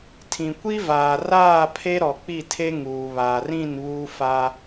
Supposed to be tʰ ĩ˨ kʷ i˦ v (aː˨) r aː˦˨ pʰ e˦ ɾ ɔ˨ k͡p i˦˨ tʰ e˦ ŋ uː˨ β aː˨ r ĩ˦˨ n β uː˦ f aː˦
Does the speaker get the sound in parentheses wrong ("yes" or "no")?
no